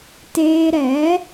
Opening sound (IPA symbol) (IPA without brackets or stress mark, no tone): t